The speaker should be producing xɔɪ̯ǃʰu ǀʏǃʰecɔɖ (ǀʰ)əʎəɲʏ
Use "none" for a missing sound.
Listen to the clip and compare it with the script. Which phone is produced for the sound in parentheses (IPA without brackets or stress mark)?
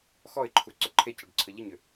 ǀʰ